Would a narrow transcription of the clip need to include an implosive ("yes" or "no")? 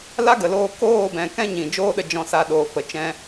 yes